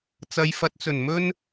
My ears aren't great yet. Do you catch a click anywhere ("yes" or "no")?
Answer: no